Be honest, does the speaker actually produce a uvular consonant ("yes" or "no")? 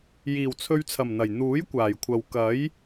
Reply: no